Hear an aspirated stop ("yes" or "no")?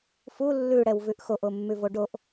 no